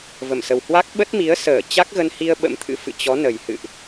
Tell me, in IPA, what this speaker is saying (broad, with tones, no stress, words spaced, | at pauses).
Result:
və˧˩msə˨˩whwa˦˥k̚ ɓə˦˥t̚mi˨˦ə̯ səː˧˩t͡ɕa˦˥k̚ɣə˧nhi˧ə̯ ɓə̰˧˥mt̪ʰɨ̰˧˥fɨ̰˧˨ t͡ɕɔ˨˦ nə˨˩jhɨ̰˧˨ʔ